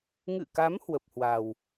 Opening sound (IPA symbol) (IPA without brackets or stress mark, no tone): ŋ